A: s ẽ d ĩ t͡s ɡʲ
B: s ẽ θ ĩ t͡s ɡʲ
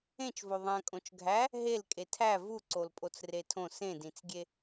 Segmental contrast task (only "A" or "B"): A